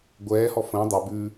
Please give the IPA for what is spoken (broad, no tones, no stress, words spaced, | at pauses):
ɡʷɛːhɔ fə̃ː dˤɛ bʉ